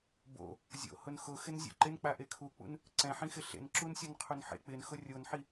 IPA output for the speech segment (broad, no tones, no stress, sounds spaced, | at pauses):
b o̰ | zʲ o̰ h ʊ n x ʊ x ɪ n zʲ ṵ ǃ ɪ n k͡p a ʔ e kʰ u k͡p ṵ n | ǀ ɛ̃ ħ ĩ x ɪ ɬ ḛ n ǁ u n sʲ ɔ n qʰ u n ħ ḛ k͡p ɪ n x ʊ rʲ o n ħ i